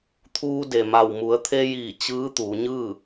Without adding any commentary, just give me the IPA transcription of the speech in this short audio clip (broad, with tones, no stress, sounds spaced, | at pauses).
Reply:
t̪ʰ uː˧ d e˩ m a˧˩ w m u˩˧ ə̯ t̪ʰ e˧ j iː˧˩ t͡ɕ ɯː˧˥ t̪ uː˩˧ ɲ ɯː˥˨